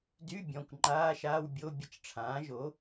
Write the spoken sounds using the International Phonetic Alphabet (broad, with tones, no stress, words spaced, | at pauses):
dy˧˥˧bʲɔ̃˩˧˩kʷ ŋ͡ǃaː˧˥˧ʃaː˧˥˧wbʲo˧˥˧ bʲə˧˥˧t͡ʃʈ͡ʂʰãː˩˥ʒo˩˥